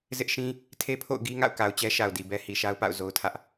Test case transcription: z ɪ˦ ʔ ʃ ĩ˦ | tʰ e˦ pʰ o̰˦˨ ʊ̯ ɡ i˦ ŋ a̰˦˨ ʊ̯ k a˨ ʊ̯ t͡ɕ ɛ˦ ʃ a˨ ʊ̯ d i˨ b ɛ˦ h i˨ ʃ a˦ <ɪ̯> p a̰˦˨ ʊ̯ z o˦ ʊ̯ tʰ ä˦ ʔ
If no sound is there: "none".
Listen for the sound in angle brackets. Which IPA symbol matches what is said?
ʊ̯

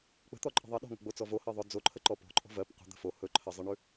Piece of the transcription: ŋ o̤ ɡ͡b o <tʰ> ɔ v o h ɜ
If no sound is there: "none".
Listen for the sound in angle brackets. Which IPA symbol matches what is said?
t͡s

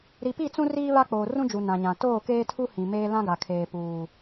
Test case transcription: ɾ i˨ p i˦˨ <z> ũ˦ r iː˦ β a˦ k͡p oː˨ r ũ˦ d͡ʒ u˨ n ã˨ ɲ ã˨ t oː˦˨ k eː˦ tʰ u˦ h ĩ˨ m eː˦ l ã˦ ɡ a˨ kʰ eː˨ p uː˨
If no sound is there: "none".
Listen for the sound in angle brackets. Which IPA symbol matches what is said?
t͡s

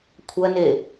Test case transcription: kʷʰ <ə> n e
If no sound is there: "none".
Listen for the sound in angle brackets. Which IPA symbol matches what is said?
ɐ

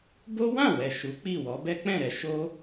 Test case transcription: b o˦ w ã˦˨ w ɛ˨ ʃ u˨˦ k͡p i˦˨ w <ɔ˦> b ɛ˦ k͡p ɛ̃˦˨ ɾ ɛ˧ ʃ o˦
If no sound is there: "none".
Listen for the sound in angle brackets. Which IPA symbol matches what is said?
ɔ˨˦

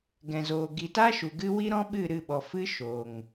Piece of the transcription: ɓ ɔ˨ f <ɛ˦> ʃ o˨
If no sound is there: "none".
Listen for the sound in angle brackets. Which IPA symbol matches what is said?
ɨ˦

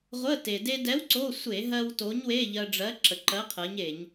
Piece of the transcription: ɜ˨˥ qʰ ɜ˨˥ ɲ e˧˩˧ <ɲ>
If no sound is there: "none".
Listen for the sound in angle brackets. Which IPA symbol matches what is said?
ɲ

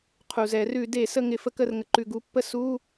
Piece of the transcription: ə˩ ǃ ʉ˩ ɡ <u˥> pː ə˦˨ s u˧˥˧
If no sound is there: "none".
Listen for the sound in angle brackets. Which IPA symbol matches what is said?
u˨˦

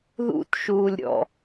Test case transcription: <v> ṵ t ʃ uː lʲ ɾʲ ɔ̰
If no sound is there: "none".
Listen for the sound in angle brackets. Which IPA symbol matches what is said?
ð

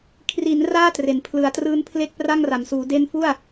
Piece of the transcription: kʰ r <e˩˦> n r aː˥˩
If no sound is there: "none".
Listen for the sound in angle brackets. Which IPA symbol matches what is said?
i˩˦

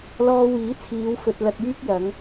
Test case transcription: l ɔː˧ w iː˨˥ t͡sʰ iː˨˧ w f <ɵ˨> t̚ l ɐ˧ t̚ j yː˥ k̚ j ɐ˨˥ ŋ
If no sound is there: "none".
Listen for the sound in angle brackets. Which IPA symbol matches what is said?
ɵ˨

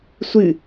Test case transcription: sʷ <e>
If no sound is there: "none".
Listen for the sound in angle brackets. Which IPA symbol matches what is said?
ɨ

